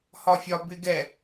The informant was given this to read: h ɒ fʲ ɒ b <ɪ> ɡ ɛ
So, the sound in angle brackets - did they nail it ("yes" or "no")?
yes